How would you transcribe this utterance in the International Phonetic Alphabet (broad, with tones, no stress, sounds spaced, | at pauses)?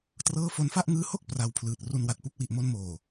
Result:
t r ɤː˥˩ f o˧ n f a˥˩ ʔ ŋ ɯː˦˥ h o˥˩ k̚ p r a˧ w pʰ l ɯː˨˩ t̚ r u˧ n w a˨˩ t̚ p u˥˩ k̚ w i˨˩ ʔ m o˧ n m oː˨˩